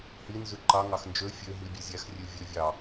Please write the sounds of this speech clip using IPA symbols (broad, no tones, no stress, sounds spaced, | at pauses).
h i n z ʉ ǃ ɑ ŋ ɑ x n d͡ʒ ø fʲ ø ɦ i bʲ ʉ zʲ æ x rʲ ʉ vʲ ø vʲ ɑ